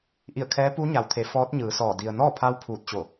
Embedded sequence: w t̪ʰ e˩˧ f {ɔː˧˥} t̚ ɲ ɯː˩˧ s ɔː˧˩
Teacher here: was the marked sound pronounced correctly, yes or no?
yes